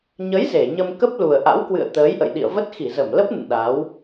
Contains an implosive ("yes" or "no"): yes